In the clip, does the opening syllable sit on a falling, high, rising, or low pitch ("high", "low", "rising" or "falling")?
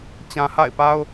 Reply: low